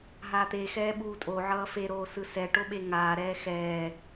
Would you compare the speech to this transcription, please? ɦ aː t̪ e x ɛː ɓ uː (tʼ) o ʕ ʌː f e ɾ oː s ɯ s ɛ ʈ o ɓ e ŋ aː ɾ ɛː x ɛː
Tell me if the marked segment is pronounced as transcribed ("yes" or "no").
yes